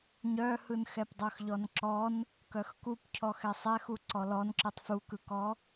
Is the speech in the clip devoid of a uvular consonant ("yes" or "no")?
yes